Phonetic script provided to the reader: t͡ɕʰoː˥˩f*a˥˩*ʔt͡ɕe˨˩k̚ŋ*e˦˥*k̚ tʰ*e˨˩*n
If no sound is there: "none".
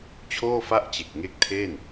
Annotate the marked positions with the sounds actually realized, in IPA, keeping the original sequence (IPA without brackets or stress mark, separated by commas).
a˥˩, e˦˥, e˥˩